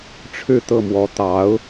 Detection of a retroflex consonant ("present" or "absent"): present